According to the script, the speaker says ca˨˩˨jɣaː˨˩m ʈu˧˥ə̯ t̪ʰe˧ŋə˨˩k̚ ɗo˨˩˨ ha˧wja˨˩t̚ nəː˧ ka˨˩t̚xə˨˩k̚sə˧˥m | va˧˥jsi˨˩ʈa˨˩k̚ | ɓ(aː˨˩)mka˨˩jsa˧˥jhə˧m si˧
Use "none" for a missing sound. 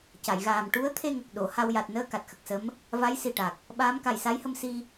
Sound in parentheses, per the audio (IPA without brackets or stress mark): aː˧˥